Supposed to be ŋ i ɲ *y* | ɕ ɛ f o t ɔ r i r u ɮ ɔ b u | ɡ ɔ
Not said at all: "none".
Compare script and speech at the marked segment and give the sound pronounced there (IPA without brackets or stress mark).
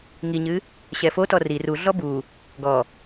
ɨ